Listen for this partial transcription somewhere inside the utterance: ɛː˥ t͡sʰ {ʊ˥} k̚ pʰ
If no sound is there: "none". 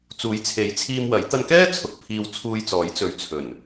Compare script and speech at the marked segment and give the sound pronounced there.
ʊ˨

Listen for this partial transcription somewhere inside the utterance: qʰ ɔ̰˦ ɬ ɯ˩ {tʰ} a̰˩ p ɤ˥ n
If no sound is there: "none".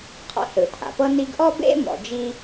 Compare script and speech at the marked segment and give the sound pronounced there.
tʰ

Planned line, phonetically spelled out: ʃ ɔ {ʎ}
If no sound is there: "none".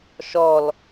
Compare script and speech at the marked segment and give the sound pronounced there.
l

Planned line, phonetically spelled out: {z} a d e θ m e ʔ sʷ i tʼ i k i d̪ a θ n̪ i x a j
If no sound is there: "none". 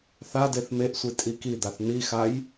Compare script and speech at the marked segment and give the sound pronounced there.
θ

